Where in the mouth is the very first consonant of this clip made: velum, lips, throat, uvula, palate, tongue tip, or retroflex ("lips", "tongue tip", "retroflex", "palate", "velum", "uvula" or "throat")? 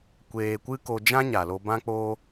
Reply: velum